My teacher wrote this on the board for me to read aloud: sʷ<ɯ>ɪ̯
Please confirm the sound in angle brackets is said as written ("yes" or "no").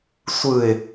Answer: yes